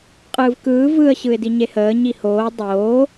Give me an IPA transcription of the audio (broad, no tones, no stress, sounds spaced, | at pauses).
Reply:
qʼ ɯː v k ɯː v ɯ ə̯ ɕ ɯ ɪ̯ d i ɲ e h əː ɲ i h oː dˤ oː